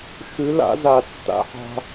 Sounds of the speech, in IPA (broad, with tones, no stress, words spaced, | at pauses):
ʃʉ˨˦la̰˨˦ za˨ tːa̰˨ħa̤˦